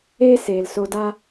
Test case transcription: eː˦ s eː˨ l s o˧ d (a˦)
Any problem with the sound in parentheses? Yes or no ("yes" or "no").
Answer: no